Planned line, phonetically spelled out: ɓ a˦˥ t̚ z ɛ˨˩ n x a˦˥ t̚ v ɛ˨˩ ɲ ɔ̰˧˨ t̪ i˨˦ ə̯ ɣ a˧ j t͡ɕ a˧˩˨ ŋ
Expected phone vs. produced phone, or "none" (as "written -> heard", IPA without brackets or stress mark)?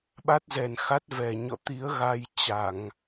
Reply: none